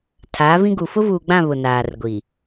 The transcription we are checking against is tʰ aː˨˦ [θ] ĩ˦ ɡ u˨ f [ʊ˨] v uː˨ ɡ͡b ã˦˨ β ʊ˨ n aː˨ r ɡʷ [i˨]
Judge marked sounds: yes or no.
no, no, yes

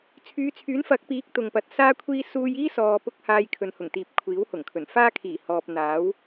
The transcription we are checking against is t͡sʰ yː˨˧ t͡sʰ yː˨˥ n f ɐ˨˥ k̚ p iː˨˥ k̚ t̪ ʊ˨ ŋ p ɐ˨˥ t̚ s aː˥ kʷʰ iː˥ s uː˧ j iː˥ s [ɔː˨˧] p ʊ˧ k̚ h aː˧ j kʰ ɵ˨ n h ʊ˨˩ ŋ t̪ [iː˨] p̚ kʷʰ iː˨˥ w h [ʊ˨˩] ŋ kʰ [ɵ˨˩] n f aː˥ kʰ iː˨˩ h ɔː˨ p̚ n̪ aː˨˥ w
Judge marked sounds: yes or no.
no, yes, yes, yes

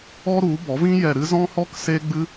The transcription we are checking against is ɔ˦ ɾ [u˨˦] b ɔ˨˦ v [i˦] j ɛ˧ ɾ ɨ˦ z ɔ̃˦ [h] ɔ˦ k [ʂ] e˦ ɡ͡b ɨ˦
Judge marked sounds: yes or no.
yes, no, yes, no

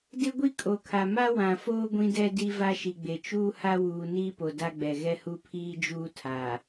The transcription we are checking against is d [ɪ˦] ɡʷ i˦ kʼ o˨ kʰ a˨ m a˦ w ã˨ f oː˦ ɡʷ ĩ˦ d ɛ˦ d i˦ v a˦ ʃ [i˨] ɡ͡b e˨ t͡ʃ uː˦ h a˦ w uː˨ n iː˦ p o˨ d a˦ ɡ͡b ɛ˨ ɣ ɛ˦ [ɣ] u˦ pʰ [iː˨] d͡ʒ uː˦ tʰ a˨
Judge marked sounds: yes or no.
yes, yes, no, no

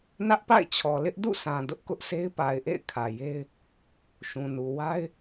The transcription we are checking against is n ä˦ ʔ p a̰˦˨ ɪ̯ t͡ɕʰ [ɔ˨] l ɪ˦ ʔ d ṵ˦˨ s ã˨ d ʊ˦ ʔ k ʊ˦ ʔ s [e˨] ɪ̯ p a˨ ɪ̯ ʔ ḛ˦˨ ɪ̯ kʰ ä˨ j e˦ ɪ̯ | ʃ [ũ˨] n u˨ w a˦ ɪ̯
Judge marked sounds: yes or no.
yes, no, yes

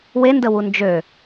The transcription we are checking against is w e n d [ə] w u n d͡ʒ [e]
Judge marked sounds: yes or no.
yes, no

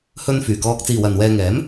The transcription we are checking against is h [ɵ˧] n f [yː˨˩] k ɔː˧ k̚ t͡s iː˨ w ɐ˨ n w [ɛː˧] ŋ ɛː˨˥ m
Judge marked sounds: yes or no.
yes, yes, yes

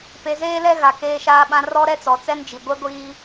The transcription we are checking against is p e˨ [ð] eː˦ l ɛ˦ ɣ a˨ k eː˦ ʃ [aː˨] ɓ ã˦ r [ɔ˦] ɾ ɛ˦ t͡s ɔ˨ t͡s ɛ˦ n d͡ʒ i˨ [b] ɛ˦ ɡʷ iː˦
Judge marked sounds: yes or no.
no, no, yes, no

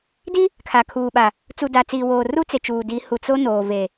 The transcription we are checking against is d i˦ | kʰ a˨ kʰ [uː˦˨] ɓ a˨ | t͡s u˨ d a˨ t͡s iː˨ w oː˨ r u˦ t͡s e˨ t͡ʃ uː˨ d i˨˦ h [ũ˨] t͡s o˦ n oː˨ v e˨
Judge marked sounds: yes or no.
no, no

